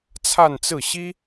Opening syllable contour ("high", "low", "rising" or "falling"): falling